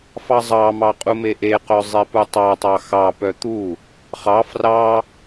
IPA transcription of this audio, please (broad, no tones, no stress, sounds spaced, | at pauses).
f ɑ zˤ ɑ m ɑ qʼ u m e ʔ e q œ zˤ e p u tˤ ɑ tˤ ɑ x ɑ p œ t̪ u | χ ɑ f r ɑ